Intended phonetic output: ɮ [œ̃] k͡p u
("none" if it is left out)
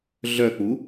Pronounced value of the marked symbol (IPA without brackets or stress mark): œ